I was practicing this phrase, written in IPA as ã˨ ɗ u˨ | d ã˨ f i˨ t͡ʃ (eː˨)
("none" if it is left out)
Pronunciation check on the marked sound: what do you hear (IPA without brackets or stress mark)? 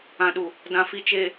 e˨